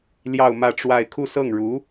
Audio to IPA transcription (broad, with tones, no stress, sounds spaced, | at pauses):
l j ɑ˥˧ ʊ̯ m ä˥˧ ʈ͡ʂ w a˥˧ ɪ̯ kʰ u˥˧ s ɤ˥˩ ŋ ɻ u˧˥